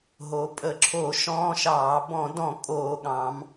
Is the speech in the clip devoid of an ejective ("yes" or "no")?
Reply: no